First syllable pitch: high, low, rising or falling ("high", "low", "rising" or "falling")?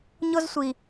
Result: high